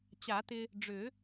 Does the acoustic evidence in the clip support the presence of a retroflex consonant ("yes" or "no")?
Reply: yes